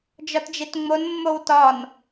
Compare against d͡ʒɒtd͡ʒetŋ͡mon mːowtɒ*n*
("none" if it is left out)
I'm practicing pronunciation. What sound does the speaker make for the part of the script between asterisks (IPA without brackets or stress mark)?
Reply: n